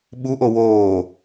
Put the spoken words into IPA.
ɓuʔo woː

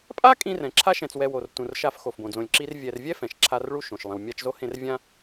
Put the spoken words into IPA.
pʼa˥ kʼĩ˦rɛ̃˩ǁʰa˥ʃɛ̃˨t͡s wɛ˨wo˩rtũ˩r ʃa˦f xo˩fbõ˩d͡zõ˨lʲǁi˦r vʲɛ˨rvʲɛ˥ fɛ̃˩ʃǁʰa˦rɭu˥ ʃõ˩ʃ lˠẽ˩wmʲa˦t͡ʃzo˥hẽ˦r vʲã˥

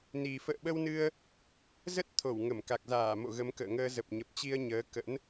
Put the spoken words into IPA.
ni˨˩ fə̰ː˧˨ɓə˧wnɨ˧ə̯ | zə˦˥t̚ t̪ʰo˧˩wŋə˧˩m ka˨˩k̚zaː˧˩mo̰˧˨ ɣə˨˦mkə̰ː˧˨ŋəː˧ zə˨˩p̚ɲə˨˩p̚t͡ɕi˧ə̯ ɲəː˨˦kə̰˧˥n

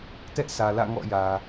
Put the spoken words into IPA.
tɛ˦ʔsʰä˨lä̰˦˨ ŋɔ̰˦˨jä˨

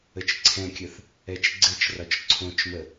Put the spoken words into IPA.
ət͡ʃǀʰɛ̃kʲəθ | ɛt͡ʃɡ͡ǀɘt͡ʃrɒt͡ʃ ǀʰõt͡ʃmə

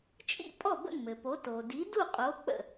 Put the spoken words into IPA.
t͡ʃʼḭ˥˩ pʼɔ˥˩bə̰˥˩ŋmɘ˩po˩˥ to˩ di˩˥du˥˩qʼo˩˥ k͡pə̰˥˩

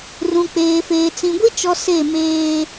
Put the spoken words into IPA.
rũ˨k͡peː˨feː˨ t͡sĩ˨ɡʷi˦ t͡ʃɔ˨ se˦˨meː˦

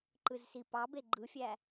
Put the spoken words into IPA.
ǃɯzsipɑbe ɡ͡ǃɯfʲæ

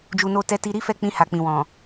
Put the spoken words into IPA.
d͡ʒu˨no˧tɛ˧ti˧ ɾi˦fɛ˦˨k͡pĩ˧ ha˨k͡pĩ˨ wɔ̃˨

